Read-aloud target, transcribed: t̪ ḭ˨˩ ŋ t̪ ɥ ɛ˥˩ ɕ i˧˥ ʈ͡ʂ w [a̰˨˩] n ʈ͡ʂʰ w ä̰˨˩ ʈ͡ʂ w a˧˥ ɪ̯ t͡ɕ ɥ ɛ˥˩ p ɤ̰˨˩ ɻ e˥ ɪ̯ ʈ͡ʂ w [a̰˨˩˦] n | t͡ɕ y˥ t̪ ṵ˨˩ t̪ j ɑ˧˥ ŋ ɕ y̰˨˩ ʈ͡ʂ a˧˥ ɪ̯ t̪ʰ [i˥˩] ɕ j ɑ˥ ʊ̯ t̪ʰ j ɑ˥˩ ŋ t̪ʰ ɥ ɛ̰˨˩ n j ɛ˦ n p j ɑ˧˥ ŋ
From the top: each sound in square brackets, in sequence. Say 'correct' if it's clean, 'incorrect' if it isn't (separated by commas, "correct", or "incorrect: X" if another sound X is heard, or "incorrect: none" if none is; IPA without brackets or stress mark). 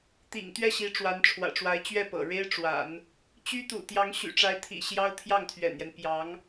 incorrect: a˧˥, correct, incorrect: ḭ˨˩